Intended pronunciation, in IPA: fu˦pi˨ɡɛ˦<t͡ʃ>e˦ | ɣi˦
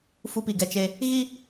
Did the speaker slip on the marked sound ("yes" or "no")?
no